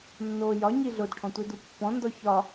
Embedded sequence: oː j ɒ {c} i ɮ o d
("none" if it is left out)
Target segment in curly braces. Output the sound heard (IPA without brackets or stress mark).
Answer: ɲ